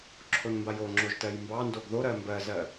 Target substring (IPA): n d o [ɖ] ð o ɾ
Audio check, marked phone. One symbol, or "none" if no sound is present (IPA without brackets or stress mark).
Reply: ɡ